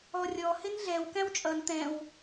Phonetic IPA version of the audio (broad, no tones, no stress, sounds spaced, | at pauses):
ɔ rʲ ɔ h ɪ n ɮ ɛ w k æ̃ w t͡ʃʼ ʌ n t̪ ɛ̃ w